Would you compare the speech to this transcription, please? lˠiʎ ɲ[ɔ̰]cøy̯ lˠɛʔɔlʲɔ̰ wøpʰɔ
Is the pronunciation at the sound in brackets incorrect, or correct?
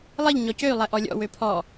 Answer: incorrect